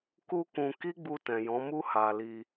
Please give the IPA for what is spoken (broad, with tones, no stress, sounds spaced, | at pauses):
k u˦ k ũ˧ k i˦ ɡ͡b u˧ t ɛ̃˨ j ɔ̃˨˦ m u˦ h a˧ l i˧